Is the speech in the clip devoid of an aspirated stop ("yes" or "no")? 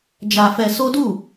yes